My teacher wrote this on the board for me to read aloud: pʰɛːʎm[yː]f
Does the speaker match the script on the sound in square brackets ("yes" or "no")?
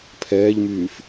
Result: yes